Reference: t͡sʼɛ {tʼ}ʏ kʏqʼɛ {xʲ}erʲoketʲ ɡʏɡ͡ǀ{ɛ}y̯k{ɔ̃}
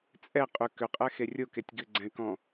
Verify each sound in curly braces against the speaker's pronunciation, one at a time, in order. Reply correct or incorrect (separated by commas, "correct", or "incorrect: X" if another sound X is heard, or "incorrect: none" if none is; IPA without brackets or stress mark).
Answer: incorrect: qʼ, incorrect: x, incorrect: ɛ̃, correct